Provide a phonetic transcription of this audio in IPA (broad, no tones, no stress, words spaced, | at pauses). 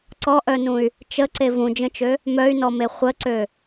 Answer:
ǀɔʔœnũy̯ | t͡ʃəǀe vũd͡ʒə̃t͡ʃø | mœy̯nɔme χʷəǀø